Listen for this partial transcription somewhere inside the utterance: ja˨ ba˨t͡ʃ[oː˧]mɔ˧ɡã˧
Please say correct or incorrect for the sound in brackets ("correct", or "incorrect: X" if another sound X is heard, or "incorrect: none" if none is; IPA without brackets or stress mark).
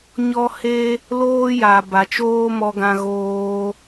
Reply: incorrect: oː˦